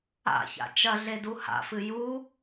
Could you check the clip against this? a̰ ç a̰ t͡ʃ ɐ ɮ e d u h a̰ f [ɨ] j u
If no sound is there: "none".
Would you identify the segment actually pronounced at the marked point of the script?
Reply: ɨ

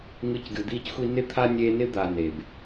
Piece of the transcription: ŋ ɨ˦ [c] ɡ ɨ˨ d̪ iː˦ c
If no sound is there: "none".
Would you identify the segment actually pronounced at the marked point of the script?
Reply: c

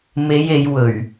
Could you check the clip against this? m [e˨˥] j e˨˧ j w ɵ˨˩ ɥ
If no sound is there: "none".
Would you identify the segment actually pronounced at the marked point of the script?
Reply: e˨˧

